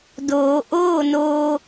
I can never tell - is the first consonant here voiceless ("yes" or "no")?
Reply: no